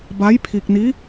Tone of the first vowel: rising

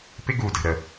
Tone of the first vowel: high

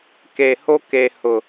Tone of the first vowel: low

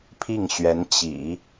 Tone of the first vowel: falling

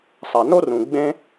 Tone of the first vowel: low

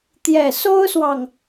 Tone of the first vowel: low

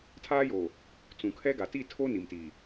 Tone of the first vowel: high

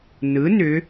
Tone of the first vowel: rising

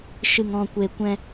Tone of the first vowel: low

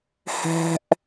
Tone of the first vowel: high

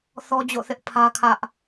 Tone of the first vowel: high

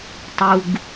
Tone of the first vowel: low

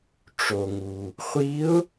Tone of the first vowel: low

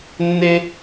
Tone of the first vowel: high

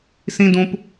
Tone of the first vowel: high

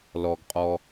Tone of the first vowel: low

